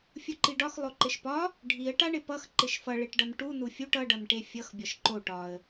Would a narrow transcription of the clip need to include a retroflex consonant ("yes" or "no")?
yes